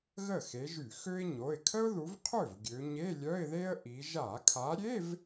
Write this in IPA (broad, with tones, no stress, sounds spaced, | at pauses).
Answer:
ɣ ə˥˩ x e˨˦ ʒ y˧˩˧ x ø˥ ɪ̯ ɲ o˩˧˩ ɪ̯ kʰ ə˥ ʊ̯ ð u˨˦ v qʰ ø˥˩ v ɡʲ ø˨˦ ɲ e˧˥˧ lʲ œ˧˥˧ ɪ̯ ð e˥ ə̯ ʔ i˨˦ ʒ a˧˩˧ kʰ a˨˦ ɾʲ e˧˥˧ v